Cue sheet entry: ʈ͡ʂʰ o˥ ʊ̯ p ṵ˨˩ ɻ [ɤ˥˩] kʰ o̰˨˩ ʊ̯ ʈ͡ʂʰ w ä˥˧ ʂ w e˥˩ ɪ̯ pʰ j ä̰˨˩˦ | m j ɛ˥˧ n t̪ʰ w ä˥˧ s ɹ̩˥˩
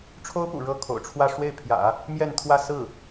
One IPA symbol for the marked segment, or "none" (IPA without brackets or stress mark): ɤ˥˩